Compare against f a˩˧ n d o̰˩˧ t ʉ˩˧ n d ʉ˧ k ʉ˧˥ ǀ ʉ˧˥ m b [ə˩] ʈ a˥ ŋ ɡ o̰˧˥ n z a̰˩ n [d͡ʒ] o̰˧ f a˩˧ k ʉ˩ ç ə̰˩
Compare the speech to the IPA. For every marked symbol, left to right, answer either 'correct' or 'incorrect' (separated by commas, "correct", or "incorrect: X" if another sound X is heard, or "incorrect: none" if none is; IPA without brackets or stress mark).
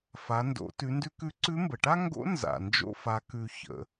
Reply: correct, correct